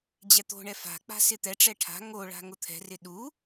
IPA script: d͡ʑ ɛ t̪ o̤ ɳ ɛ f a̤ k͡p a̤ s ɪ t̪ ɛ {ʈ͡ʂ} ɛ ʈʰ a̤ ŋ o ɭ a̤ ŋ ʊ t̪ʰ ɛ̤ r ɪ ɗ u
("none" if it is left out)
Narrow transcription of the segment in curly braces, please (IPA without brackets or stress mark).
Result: ʈ͡ʂ